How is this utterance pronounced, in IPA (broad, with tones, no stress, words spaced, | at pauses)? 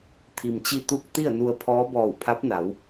t̪ʰi˩mt͡ɕi˧t̪u˧k̚ t̪i˥˨ə̯nu˧ə̯pʰɔː˧˥ bɔː˧˩wpʰa˧˥p̚na˩˧w